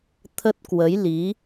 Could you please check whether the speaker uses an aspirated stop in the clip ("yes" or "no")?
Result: yes